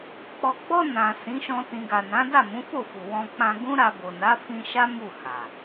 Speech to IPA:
k͡pɔ˨ɡ͡bɔ˧ nã˨ sĩ˨˦ʃɔ̃˧ tĩ˨ɡa˨nã˨˦ da˦˨mũ˨˦fo˦˨fu˨ wɔ̃˧k͡pã˧ ɡũ˦ɾa˧bo˨ na˨˦fĩ˧ʃa˦ mu˦˨ha˨

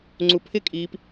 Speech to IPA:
ŋ͡ǀupʰɪkʼiːp

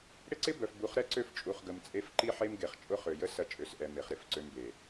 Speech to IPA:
ɽɪ˦ǀɪ˦ bœ˨fbu˨˦χɾɛ˦ ǀø˦ft͡ʃʼu˨χɡə˨m t͡sʼe˦f ǃi˦ħe˦m ɡe˨χt͡ʃʼʊ˦ χø˨jə˦ sɐ˦t͡ʃʼø˨sʔɛ˨ me˨χɾɪ˦˨fǀø˦mbe˨

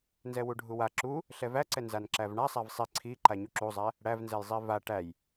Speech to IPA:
nzɛwuɖʱuwa ǁu | ɬɛvæǀɛ nzanǁævɳasˤæv sˤi ǀʰiǃa ɲuǁuzˤæ | ɽævnzɛjzˤi va ʈæj

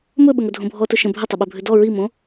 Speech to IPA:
mɵɓə ŋɵdʱõbʱɔ tɵʃə̃ bʱətˤʏɓɵ bʱʏdɔ ɹimõ

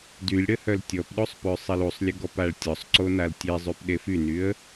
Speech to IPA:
dylʲɽəhœl tʲɔpɗosˤpøsˤel usˤlʲəɡɔpaɭ tʲɔsˤǀonal tʲezˤypɗe fynyə̯

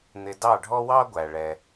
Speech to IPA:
n̪ɪ˧ dɑ˥˩ɖʱɔ˥wɑ˥ ɡʷæ˩ɭɛ˩

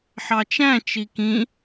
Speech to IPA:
ħɑt͡ʃæ̃ t͡ʃikĩ

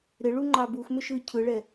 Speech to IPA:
ɾɪɭuŋ͡ǃɑ buxmʏʃɯ cʰɯɭɛ

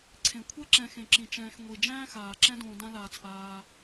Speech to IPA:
ǀʰẽ˩kʷʰɛ˦ ǁɛ̃˨xẽ˩ǁĩ˩ t͡ʃɛ̃ː˨xŋʷi˩ d͡ʒæ̃ː˥xaː˩ǁɛ̃˦dõː˨ dã˦laː˨t͡sʔaː˨

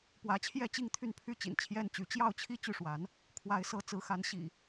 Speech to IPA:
pwä˨˦t͡ɕʰjɛ˥˨t͡ɕi˥˨ŋ t̪ʰy˥˨npʰy˥˨t͡ɕḭ˨˩n t͡ɕʰjɛ˦nt͡ɕy˨˦ t͡ɕjɑ˥˨ʊ̯t͡ɕʰi˥˨ t͡ɕy˥˨ʂwa˨˦n | kʰwa˨˦ɪ̯sɤ˨˦t͡sɹ̩˨˦xa˨˦n ɕḭ˨˩

